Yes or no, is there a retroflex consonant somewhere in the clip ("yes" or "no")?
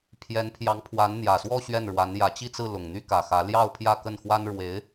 yes